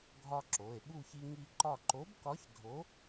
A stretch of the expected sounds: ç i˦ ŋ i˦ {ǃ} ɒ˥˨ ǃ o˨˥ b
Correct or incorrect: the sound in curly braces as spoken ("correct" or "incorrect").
correct